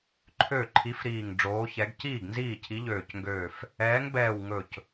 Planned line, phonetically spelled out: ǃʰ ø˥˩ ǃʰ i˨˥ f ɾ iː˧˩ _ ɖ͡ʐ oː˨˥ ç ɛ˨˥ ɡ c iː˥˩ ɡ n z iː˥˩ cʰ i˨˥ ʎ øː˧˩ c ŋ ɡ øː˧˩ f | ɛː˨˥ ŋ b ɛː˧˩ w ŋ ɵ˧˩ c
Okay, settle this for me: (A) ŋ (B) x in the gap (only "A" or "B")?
A